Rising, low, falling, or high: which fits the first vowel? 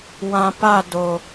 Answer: low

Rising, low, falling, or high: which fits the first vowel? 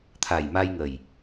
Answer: low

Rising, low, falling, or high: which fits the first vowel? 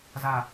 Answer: low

